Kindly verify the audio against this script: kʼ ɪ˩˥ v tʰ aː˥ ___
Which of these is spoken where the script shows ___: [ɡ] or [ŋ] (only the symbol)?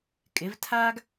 ɡ